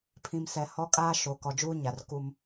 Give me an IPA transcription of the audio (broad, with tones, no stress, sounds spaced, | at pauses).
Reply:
pʰ ĩ˨ m s ɛ˨ h ɔ˦ kʼ aː˦ ʃ o˨ k ɔ˨ d͡ʒ uː˦ ɲ a˨ r k u˦ m